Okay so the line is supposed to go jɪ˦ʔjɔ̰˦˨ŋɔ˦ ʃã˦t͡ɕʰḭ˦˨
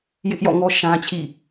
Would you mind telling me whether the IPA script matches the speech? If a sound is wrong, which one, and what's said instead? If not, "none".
none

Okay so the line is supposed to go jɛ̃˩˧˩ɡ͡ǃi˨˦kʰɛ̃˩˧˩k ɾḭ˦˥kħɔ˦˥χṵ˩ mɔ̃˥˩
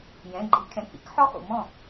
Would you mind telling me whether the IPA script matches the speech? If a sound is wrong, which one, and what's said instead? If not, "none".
none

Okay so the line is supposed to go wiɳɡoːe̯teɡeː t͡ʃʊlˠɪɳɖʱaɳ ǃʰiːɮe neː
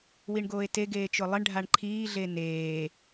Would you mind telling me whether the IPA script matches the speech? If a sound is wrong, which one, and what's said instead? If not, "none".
none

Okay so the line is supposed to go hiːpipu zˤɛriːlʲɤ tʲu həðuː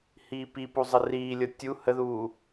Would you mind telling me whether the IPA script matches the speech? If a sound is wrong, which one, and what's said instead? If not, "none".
ɛ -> ə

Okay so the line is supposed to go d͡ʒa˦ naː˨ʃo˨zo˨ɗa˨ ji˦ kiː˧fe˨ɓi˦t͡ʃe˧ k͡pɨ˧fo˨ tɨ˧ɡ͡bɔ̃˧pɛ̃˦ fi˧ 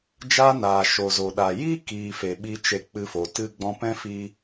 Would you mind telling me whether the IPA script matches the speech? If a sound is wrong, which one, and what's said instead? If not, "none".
none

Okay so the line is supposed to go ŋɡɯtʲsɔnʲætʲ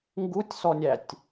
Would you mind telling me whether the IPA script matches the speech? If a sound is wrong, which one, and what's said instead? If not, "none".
ɯ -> u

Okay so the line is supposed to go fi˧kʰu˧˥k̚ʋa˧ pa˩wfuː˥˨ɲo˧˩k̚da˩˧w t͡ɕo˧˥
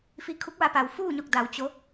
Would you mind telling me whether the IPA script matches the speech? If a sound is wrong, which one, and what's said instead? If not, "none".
none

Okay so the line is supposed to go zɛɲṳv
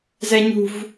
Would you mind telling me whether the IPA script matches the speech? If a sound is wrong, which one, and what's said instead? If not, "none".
none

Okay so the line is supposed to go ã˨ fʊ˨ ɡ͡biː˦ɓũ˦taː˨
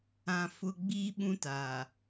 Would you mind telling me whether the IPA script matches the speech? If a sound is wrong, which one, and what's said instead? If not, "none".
none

